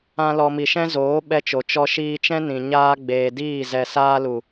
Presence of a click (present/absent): absent